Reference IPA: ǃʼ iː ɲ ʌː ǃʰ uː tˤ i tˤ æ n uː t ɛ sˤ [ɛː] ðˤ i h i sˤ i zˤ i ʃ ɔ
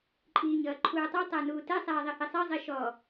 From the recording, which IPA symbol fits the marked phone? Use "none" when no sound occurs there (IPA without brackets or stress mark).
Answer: ɛː